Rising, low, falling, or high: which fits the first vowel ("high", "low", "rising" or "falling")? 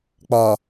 low